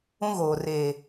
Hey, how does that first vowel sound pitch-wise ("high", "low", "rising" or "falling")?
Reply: high